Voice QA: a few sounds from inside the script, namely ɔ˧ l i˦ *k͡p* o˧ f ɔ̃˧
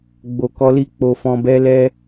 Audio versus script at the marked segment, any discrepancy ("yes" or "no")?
no